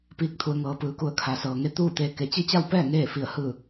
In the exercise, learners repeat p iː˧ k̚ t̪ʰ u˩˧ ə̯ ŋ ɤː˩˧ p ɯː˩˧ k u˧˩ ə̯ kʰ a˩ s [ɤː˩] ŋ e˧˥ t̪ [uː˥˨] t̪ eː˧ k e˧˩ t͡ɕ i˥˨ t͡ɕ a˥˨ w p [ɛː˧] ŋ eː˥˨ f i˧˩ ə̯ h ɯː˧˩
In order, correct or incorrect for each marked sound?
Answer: correct, correct, incorrect: ɛː˥˨

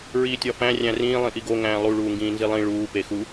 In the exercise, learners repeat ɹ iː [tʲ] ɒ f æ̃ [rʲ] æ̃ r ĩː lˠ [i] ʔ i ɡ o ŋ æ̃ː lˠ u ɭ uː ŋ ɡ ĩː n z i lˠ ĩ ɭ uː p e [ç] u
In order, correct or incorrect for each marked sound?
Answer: correct, correct, incorrect: ĩ, incorrect: x

